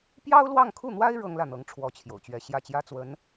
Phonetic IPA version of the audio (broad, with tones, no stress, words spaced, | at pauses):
pjɑ˥ʊ̯lwɑ˥˧ŋkʰu˥˩n̪wa˥ɪ̯ ɻɤ˥ŋlä˥˩n̪ɤ˧˥ŋ ʈ͡ʂʰwɔ˧˥t͡ɕʰjo̰˨˩ʊ̯t͡ɕɥɛ˧˥ ɕjä˥˩t͡ɕjä˥t͡swə˧˥n